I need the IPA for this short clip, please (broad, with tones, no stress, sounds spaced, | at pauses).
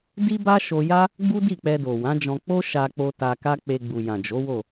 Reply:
d i˦ b a˦ ʃ o˧ j a˦ | ɡ͡b u˦ d i˦˨ k͡p ɛ˧ d o˨ w ã˨˦ d͡ʒ ɔ̃˧ k͡p o˦ ʃ a˧ k͡p o˧ t a˧ k a˦ k͡p e˧ ɡ͡b u˨ j ã˨ d͡ʒ o˨˦ w o˦˨